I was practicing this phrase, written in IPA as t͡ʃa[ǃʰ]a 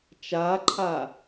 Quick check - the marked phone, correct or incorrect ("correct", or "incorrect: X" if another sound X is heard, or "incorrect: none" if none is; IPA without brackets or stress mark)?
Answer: correct